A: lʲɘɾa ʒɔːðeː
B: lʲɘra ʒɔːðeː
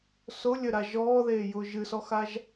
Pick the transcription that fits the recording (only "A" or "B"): A